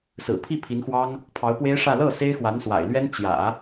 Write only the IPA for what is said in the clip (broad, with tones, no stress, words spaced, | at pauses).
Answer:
sɹ̩˨˩pʰi˥˩ pʰi˧˥nxwɑ˥ŋ | pʰɑ˧˥ʊ̯pwe˥ɪ̯ʂä˥˧ lɤ˥˩ se˥ɪ̯xwa˧˥nswa̰˨˩ɪ̯lɥɛ˥n t͡ɕjä̰˨˩˦